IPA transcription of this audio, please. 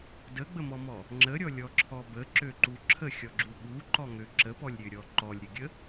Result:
dəɡ͡bəmɔmɔ | ŋ͡ǁəɾʲɔlʲɔǁʰɔ bəǁøǃu ǁʰəxʲɔɡ͡ǁu ɓuǃɔŋø ǁəpɔlʲɾʲøɾʲɔ ǃɔlʲɾʲəɡʲə

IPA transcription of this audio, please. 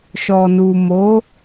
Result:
ʃɔ˨nu˨mo˨˦

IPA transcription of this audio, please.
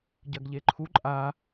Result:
ɟɐɡʎeǃʰu ǃʼa

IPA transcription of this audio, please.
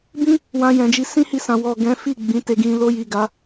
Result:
bĩ˦ | wã˧jɛ̃˨d͡ʒi˧ sĩ˦hi˧sã˨ wɔ˨ɡɛ̃˨˦ fi˦˨ ɡ͡bĩ˨˦te˧ɡĩ˧ lo˧ji˨ ɡa˨˦

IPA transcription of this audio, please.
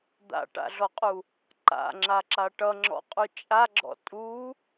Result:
d̪a̰ʈa̰ɮɔqʼu | ǃa̰ŋ͡ǁaǁa ʈʌŋ͡ǁɔ̰qʼu t͡ʃʼaɡ͡ǁɔ̰ tʼu

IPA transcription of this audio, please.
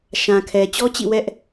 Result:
ʃã˨kʰɛ˨ t͡ɕɔ˦t͡ɕḭ˦˨wɛ˦ʔ

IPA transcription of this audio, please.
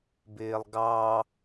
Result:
bɪːlˠɡɑ

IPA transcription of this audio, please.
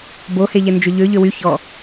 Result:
boheʎɛ nd͡ʒɵʎø ʎøwy çɔ

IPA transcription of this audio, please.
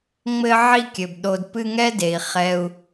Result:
ŋ͡mɘ˦ʕi˦kʲɘ˩bɗo˨d pɨ˦ŋɛ˥de˩i̯ χɛ˨u̯

